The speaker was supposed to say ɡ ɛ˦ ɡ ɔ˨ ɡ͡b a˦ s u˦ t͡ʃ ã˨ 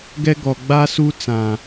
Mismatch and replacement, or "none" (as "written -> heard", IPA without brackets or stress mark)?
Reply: t͡ʃ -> t͡s